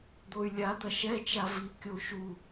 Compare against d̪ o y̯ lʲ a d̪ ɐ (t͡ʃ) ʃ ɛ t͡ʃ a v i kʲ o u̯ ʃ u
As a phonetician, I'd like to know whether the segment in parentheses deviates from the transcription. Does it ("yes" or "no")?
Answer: yes